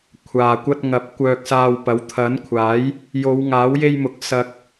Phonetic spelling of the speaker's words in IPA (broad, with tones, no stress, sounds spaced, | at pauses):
kʷʰ aː˨ kʷ ɐ˧ t̚ ŋ ɐ˨˥ p̚ kʷ œː˧ k̚ s aː˧ w p ɐ˨˥ w t̪ʰ ɐ˨˥ n kʷʰ aː˨˥ j | j o˨˧ w ŋ aː˨˥ w j e˧ j m ʊ˨˥ k̚ s ɐ˧ k̚